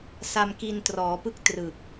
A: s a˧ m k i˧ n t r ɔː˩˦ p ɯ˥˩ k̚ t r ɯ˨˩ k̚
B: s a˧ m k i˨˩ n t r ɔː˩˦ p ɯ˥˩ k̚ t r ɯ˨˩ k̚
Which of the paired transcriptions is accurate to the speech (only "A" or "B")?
A